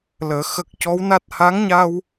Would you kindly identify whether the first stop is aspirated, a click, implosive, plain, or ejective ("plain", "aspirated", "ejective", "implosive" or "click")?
plain